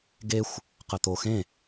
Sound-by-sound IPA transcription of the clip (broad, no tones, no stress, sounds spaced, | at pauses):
ɡ e xʷ | q ə t̪ o x ẽ